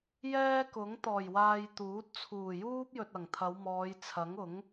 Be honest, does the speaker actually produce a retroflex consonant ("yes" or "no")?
no